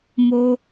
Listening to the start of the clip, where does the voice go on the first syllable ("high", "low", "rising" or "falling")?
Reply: high